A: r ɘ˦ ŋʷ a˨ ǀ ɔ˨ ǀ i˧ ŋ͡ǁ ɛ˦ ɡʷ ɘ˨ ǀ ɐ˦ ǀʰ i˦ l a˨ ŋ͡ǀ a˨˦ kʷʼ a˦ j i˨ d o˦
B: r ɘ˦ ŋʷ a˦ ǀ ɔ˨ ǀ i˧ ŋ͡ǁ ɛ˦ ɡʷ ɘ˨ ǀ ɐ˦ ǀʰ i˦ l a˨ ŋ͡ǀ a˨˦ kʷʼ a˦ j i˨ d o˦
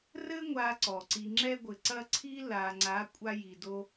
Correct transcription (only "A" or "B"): B